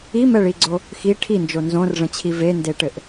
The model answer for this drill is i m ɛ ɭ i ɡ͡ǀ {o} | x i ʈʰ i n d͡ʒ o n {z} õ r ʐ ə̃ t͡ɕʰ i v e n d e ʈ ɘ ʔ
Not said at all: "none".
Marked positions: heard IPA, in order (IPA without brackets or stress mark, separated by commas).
o, z